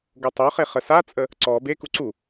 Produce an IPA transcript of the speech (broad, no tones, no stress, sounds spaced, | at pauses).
ɡ o tˤ o χ e χ ə s a t͡sʼ ə | ǀ ɔ b e k u ǀ u